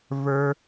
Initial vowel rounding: unrounded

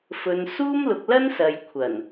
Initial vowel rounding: rounded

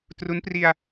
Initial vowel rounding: rounded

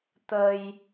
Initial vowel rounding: unrounded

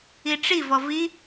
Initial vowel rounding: unrounded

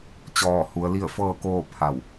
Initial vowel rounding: rounded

